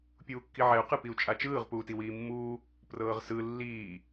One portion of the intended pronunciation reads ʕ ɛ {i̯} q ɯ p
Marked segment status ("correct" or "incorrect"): incorrect